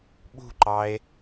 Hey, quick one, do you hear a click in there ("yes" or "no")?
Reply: yes